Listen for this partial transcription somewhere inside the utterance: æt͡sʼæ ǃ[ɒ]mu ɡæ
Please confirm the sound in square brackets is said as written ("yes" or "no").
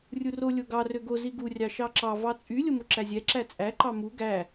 no